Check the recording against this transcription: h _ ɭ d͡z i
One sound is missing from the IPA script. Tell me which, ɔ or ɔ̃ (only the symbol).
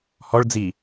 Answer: ɔ